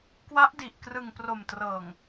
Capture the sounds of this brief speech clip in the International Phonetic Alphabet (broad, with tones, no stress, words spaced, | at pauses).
kwa˦˥ʔdi˨˩ʔ krɯ˨˩ŋpro˨˩mtrɤː˨˩ŋ